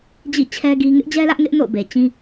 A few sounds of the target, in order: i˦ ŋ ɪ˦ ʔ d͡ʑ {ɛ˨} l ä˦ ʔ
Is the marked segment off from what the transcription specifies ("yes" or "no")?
yes